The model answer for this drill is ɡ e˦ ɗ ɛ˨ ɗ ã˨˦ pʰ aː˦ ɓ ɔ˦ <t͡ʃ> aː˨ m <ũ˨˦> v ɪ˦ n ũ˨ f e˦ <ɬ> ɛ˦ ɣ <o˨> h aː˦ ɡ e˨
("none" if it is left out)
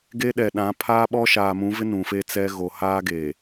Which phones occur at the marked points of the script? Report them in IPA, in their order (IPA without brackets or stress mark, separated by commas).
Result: ʃ, ũ˨˦, t͡s, o˨